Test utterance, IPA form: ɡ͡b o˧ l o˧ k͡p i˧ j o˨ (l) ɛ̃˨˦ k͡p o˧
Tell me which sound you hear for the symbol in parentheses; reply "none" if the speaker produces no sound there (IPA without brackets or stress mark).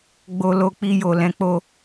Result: l